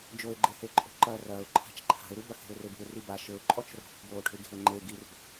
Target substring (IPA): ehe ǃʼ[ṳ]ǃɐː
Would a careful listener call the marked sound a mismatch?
yes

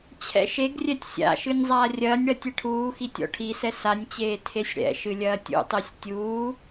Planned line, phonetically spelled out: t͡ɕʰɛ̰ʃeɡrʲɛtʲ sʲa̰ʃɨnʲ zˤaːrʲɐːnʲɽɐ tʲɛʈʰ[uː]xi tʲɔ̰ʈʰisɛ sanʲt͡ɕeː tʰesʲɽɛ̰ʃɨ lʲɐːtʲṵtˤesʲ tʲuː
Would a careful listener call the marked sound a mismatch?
no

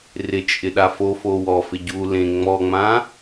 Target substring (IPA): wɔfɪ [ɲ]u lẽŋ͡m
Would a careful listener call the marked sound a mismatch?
yes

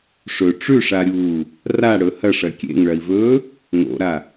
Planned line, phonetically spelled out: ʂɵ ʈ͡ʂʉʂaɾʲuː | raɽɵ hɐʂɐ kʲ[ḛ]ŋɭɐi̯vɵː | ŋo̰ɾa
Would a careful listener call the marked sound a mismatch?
no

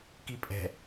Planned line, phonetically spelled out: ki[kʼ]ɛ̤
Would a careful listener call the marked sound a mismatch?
yes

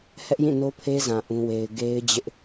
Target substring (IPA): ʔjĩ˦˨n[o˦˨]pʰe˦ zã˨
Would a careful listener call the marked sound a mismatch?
yes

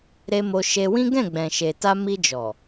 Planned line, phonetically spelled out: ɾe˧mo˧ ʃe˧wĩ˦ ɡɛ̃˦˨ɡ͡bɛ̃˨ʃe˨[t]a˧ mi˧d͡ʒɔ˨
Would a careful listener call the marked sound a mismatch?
no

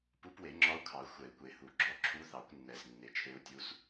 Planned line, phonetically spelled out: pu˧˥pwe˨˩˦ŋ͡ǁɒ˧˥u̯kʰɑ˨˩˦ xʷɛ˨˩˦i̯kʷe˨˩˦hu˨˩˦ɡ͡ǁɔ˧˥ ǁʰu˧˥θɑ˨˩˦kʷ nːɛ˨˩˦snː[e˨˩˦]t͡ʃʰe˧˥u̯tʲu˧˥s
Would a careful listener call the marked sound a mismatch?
no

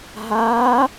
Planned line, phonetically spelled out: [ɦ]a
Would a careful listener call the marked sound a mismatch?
no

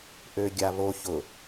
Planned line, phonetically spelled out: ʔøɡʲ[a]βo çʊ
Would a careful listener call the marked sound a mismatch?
no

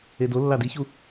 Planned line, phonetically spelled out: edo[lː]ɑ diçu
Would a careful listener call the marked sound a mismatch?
no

